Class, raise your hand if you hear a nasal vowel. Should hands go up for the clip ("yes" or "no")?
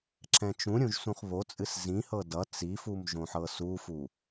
yes